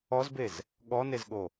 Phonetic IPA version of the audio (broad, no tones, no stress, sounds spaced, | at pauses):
ɔ z b e z | ɠ ɔ n e z ɠ o